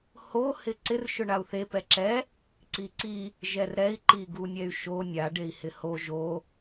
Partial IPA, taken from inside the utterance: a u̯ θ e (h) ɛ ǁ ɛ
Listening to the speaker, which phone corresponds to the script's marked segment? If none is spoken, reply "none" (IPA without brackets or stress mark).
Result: p